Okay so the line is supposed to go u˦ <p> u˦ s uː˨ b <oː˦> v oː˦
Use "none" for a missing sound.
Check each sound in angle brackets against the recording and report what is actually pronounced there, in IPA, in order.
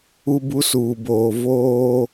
b, oː˨

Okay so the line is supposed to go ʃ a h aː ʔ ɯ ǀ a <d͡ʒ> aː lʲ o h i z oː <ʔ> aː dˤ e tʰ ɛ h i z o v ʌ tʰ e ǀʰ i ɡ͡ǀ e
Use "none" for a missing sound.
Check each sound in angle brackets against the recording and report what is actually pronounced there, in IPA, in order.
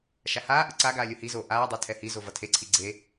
ɡ, ʔ

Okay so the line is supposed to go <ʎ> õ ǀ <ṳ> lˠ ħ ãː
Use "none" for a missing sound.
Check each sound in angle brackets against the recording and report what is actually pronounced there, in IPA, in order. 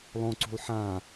lˠ, ṳ

